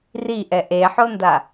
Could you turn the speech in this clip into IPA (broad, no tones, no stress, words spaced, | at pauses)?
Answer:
riʔɛ ʔeħonda